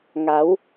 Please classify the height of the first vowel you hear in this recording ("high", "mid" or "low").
low